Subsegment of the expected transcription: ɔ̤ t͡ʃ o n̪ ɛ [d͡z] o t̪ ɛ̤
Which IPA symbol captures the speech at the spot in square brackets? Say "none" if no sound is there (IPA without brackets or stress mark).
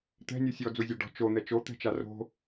t͡ʃ